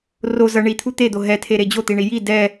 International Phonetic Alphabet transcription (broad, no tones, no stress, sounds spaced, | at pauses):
r o z ʌ ɳ i t̪ʰ u t̪ e d̪ o ɦ ɛ tʰ e ɾ e d͡ʑ o t̪ i ɳ i j i d ɛ